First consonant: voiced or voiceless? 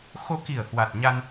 voiceless